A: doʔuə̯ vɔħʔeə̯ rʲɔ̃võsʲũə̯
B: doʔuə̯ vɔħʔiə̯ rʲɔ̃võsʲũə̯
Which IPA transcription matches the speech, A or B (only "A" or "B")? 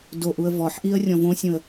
B